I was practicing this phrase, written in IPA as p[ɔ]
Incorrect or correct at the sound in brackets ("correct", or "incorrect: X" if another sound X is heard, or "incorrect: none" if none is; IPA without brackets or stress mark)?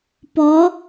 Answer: correct